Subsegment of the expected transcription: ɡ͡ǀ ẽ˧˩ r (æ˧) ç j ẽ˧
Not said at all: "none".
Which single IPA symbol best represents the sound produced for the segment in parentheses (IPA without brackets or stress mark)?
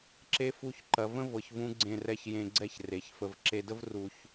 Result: ɛ˧